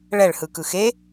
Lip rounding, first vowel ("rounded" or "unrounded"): unrounded